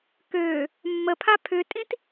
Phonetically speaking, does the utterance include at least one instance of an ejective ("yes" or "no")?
yes